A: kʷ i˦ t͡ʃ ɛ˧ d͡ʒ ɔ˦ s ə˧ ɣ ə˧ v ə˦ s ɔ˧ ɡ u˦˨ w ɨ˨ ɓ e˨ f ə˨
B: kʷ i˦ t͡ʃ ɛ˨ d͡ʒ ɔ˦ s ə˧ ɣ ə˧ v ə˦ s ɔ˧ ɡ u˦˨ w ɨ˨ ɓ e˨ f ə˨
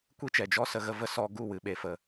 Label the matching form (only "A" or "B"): B